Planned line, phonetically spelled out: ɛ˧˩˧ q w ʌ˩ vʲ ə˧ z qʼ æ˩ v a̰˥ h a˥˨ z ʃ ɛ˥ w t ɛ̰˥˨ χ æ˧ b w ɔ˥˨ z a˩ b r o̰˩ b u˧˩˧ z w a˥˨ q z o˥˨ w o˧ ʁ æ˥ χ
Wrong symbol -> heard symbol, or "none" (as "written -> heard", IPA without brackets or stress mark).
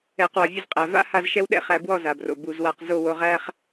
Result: t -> ɗ